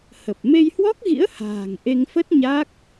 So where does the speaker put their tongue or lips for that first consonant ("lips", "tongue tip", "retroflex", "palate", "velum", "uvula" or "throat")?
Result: throat